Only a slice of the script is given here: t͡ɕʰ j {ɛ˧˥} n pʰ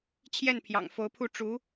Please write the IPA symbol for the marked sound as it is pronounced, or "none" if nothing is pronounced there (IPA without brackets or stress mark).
ɛ˥˩